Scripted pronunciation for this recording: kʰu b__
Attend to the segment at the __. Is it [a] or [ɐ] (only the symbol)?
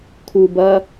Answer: ɐ